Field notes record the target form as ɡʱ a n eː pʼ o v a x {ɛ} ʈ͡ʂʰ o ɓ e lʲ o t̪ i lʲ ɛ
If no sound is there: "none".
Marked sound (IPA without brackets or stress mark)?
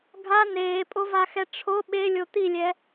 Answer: ɛ